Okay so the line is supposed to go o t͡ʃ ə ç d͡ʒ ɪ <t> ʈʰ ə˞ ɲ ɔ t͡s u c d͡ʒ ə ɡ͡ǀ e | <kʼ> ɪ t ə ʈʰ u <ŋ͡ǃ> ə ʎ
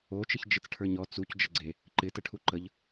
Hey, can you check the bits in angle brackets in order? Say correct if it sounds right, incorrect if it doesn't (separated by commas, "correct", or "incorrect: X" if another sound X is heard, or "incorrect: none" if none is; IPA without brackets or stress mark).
incorrect: t͡s, incorrect: ǃ, incorrect: ǃ